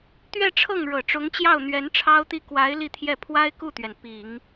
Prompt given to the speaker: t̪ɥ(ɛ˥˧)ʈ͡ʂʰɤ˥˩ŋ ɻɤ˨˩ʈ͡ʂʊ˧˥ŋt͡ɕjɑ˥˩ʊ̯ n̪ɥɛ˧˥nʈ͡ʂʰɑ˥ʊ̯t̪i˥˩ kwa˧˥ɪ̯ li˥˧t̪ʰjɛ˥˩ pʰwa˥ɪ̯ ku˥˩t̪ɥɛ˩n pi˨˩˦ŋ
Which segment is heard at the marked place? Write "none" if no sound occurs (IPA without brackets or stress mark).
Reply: ɛ˥˧